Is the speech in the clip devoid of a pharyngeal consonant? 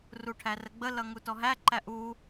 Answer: yes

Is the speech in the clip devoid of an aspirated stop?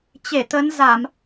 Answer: yes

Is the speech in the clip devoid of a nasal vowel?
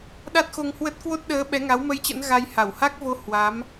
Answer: yes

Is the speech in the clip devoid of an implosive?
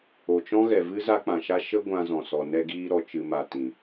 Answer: yes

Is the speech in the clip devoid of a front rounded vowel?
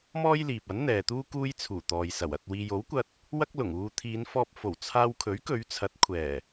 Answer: yes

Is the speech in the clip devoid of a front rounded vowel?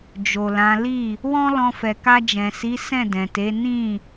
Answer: yes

